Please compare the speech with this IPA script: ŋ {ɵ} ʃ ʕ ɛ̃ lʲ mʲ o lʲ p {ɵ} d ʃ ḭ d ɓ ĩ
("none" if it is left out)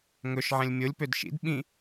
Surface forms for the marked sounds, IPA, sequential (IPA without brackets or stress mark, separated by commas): ɵ, ø